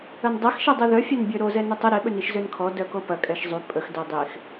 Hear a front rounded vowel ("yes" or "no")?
yes